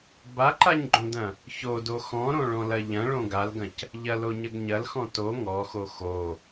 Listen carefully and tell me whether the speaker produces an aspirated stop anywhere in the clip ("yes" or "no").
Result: no